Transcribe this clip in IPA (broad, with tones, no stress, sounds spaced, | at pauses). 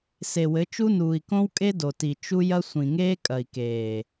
s e˨ w ɘ˨˦ t͡ʃ u˦ n uː˨ i̯ k õ˦ w kʼ e˦ d o˨ t i˨ t͡ʃ u˦ j ɐ˦ sʷ ĩ˨ ŋ eː˦ kʼ ɐ˨ i̯ k eː˨